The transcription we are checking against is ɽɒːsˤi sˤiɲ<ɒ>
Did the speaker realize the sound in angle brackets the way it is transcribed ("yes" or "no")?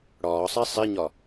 yes